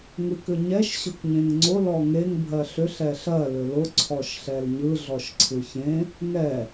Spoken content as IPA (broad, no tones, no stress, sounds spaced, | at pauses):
ŋ ɯ k ʏ ɲ ɛ ʃ ɕ ʊ k ɲ ẽ ŋ ŋ͡ǀ ʊ l ɔ ŋ e ŋ bʱ ɜ ɬ ʏ ɬ ɛ ɬ ɜ l ʏ l ʊ ǀʰ ɔ ʃ ɬ ɛ l ɲ ɯ ɮ ɔ ʃ ǀʰ ɯ ç ẽ | ŋ ɛ